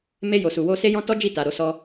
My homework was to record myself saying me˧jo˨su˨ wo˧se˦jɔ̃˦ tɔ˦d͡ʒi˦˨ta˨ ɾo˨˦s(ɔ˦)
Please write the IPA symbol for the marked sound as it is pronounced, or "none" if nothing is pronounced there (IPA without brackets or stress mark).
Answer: ɔ˦